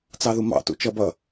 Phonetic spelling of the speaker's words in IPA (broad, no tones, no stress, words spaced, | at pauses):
t͡sɑðumɑ̰tṵ t͡ʃʌbʌ